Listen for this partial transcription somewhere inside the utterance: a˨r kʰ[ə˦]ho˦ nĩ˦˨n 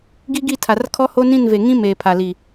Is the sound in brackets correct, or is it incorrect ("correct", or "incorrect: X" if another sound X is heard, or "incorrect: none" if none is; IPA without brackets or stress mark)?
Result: incorrect: ɔ˦